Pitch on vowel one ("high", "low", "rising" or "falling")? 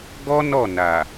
high